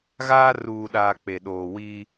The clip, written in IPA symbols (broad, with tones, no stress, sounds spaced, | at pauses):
ɣ aː˦ r uː˨ ɗ aː˨ k͡p e˨ ɗ oː˨ w iː˦